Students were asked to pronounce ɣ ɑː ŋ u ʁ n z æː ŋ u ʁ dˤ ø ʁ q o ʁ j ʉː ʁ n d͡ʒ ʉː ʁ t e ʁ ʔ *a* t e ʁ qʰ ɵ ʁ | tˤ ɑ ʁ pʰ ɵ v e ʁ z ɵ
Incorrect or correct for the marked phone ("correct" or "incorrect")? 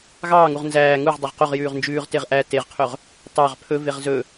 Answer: incorrect